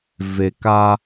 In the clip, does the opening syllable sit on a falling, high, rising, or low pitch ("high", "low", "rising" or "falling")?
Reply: low